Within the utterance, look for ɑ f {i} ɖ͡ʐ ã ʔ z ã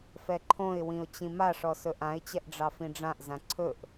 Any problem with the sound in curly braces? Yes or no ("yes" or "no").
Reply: yes